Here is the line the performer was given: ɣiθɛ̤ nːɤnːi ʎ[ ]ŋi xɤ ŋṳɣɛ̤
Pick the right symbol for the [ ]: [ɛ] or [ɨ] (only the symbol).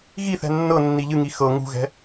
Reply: ɨ